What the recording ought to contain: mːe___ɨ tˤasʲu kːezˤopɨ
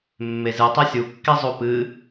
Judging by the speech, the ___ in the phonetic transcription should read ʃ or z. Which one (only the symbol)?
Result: z